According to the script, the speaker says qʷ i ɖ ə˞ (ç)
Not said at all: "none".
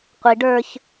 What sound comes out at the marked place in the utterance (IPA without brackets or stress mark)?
ç